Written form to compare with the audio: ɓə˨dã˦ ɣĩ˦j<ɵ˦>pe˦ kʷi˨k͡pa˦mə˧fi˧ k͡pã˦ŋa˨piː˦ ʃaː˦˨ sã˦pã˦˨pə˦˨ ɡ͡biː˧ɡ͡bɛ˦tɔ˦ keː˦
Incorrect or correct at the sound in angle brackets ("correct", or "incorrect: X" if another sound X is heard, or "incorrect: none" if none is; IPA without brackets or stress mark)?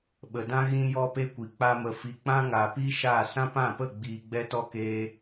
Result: incorrect: ɔ˦